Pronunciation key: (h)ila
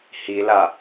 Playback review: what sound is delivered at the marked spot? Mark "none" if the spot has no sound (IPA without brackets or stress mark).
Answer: h